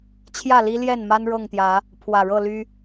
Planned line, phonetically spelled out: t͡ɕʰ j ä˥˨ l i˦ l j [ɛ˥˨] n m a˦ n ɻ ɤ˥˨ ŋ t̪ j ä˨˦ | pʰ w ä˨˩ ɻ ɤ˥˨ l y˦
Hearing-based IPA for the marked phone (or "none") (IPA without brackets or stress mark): ɛ˥˨